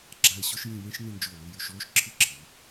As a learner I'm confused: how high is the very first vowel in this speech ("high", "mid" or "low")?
low